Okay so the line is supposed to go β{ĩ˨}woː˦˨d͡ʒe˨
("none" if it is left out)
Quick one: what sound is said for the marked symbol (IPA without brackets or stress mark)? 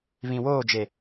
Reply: ĩ˨